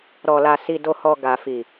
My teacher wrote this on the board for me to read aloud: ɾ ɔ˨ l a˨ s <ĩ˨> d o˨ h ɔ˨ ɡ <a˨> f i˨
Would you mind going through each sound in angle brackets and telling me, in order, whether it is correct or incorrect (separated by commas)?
incorrect, correct